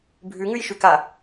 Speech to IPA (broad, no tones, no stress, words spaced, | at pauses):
bʱʉŋʉjʃʉka